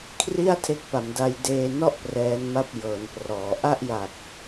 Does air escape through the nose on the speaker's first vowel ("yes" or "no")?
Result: no